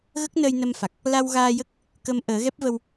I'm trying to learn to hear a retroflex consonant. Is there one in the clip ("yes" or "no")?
no